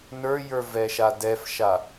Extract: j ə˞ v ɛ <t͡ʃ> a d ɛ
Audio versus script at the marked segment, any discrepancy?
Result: yes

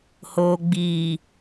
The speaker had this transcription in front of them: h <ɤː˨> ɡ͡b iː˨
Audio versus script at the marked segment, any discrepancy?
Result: yes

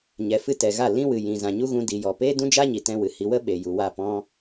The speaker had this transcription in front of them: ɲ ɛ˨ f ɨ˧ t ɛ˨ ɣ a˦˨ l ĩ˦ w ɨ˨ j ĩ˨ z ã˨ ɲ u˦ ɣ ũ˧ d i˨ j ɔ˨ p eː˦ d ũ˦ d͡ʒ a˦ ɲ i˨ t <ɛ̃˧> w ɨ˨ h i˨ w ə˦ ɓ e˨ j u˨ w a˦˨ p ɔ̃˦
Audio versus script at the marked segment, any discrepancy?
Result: no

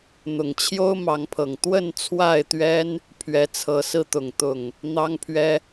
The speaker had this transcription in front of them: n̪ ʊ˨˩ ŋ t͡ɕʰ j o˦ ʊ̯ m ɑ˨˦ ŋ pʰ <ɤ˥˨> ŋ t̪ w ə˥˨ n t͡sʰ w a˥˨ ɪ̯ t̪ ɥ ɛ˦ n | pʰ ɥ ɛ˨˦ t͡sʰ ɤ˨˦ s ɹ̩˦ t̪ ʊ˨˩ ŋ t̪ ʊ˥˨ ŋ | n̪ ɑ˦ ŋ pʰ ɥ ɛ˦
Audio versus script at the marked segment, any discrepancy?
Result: yes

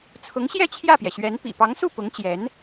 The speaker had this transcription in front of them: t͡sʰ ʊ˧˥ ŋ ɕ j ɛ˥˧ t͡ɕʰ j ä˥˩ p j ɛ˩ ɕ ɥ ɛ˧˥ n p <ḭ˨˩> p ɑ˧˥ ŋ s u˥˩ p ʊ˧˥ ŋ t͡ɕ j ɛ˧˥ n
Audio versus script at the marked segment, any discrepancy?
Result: no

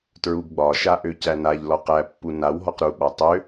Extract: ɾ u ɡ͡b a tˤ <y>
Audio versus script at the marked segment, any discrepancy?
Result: yes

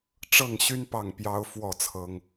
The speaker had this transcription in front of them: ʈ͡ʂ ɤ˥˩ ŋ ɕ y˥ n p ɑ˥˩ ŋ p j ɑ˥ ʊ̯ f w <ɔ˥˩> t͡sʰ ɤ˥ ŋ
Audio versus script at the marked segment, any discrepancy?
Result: no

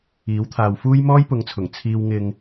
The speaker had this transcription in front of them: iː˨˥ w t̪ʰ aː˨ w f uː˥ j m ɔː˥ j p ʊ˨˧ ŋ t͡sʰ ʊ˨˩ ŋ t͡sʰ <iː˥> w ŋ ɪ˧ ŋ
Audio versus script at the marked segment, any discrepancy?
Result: yes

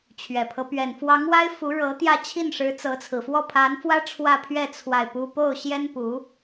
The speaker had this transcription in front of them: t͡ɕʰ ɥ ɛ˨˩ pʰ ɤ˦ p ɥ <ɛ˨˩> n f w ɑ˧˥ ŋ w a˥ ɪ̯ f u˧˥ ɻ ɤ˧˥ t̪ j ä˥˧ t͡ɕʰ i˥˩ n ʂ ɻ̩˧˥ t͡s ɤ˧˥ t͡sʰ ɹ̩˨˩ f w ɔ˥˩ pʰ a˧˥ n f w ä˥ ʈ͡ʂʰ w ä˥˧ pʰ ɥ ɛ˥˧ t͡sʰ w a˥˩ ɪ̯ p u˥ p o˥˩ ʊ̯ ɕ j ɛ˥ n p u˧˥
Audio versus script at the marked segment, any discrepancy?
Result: no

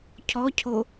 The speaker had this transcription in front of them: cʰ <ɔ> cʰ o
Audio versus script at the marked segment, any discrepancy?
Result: no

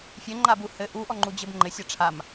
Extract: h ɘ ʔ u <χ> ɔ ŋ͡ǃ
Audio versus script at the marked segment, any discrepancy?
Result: yes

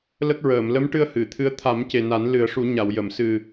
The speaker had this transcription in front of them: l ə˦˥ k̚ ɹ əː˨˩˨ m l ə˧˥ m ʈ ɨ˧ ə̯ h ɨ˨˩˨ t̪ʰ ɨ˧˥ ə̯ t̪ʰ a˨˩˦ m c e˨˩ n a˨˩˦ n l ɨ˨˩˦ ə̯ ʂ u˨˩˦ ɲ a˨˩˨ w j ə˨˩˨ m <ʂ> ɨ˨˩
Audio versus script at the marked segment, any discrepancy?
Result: yes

